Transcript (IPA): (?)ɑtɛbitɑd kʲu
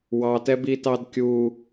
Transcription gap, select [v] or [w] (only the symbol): w